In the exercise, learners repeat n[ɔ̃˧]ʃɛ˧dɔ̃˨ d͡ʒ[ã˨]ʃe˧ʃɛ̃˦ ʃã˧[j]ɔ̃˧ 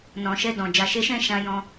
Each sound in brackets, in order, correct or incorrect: incorrect: ɔ̃˨, incorrect: a˨, correct

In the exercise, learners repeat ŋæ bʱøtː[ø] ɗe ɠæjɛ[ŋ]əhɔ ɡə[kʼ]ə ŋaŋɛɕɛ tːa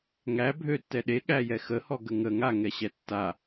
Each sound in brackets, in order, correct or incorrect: incorrect: ɛ, incorrect: x, incorrect: ŋ

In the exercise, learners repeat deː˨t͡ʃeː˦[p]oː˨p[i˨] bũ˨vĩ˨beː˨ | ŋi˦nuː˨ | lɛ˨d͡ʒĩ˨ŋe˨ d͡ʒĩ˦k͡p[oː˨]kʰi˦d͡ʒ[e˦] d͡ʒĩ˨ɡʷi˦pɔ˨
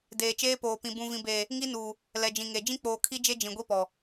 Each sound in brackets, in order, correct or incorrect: correct, incorrect: ĩ˨, correct, correct

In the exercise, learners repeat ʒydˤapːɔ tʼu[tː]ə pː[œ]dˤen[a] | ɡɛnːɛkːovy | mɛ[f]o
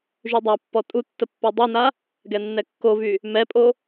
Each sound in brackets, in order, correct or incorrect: correct, correct, correct, incorrect: pʼ

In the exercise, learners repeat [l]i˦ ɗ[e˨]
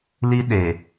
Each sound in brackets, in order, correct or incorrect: correct, correct

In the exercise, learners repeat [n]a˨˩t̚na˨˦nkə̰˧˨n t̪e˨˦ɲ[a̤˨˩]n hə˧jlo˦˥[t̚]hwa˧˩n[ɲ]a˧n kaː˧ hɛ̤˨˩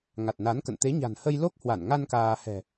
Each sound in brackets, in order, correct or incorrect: incorrect: ŋ, correct, incorrect: k̚, incorrect: ŋ

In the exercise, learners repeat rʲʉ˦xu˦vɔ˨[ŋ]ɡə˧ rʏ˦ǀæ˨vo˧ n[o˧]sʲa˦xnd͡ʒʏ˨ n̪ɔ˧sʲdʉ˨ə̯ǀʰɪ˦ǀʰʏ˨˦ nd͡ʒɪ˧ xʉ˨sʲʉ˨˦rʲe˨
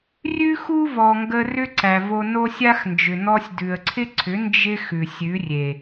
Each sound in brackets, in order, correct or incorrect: correct, incorrect: o˦

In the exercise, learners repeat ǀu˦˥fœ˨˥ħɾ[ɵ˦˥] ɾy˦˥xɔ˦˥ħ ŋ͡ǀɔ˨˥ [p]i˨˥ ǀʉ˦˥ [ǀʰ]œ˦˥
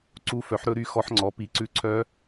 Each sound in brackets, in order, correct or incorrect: correct, correct, correct

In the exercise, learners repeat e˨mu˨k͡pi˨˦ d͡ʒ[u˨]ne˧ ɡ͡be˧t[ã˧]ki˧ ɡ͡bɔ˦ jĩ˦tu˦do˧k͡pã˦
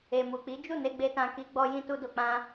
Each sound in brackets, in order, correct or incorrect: incorrect: u˦˨, correct

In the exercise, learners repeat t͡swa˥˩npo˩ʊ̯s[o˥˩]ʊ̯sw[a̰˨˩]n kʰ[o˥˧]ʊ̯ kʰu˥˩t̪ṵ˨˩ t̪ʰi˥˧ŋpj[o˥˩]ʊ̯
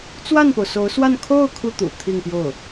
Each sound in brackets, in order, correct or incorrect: incorrect: o˧˥, incorrect: a˥˧, correct, correct

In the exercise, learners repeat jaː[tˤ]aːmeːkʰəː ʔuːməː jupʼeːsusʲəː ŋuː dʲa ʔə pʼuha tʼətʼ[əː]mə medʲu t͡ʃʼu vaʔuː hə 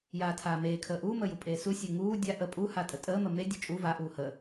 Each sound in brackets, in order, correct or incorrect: incorrect: tʰ, correct

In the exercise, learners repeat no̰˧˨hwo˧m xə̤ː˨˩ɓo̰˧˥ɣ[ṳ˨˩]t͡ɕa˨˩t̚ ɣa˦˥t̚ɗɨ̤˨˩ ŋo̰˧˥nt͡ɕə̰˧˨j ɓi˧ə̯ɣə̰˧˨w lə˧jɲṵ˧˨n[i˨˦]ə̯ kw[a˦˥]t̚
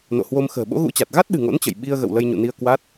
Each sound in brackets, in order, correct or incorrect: incorrect: ṵ˧˥, incorrect: i˧, correct

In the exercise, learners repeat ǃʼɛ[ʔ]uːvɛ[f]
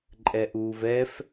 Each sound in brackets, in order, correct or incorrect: correct, correct

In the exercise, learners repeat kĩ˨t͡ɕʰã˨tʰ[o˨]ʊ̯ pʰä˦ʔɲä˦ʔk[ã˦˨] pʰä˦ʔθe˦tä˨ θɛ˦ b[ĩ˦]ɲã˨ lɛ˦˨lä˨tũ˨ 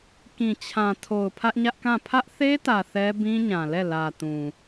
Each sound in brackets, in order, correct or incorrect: correct, correct, correct

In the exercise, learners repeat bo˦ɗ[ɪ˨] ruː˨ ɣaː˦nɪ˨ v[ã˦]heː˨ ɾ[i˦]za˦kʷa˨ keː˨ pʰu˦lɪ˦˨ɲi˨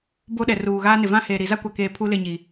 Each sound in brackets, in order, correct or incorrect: incorrect: ɛ˨, correct, incorrect: i˨

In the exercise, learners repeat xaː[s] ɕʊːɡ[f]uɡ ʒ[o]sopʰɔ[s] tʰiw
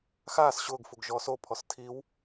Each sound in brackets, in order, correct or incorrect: correct, correct, incorrect: ɔ, correct

